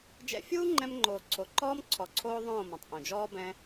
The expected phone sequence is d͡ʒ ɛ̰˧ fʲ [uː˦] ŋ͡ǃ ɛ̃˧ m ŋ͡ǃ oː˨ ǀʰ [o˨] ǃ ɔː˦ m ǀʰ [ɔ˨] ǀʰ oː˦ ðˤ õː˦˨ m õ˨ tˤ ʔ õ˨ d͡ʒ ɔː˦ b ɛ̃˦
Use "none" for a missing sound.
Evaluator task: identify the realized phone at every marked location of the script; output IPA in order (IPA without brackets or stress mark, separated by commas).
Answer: uː˦, o˨, ɔ˨